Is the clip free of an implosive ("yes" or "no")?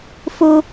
yes